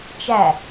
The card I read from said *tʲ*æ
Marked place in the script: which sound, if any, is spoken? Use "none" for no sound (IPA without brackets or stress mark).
t͡ʃ